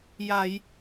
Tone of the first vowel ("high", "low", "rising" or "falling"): low